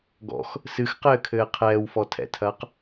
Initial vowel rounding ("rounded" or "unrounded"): rounded